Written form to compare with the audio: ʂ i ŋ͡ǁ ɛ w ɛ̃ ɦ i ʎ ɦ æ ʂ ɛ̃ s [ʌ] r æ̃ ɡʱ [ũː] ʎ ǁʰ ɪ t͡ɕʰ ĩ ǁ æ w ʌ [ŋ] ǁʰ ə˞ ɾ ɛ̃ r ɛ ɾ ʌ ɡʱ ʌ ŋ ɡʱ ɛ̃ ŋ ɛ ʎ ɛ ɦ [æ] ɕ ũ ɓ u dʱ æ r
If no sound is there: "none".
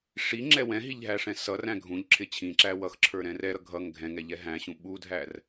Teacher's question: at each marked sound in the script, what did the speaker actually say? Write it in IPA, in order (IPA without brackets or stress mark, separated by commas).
ʌ, ũ, x, æ̃